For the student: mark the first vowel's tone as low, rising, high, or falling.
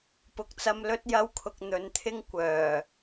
low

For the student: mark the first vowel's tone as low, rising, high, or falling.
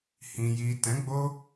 low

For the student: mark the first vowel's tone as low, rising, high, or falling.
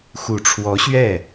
low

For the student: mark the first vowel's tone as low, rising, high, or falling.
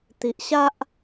low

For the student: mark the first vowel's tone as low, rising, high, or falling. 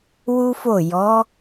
high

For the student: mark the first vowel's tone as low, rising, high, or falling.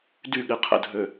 falling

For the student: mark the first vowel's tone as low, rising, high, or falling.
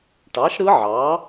rising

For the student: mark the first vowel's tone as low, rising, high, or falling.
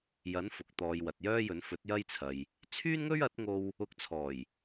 rising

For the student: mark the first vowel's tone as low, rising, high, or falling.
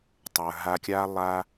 low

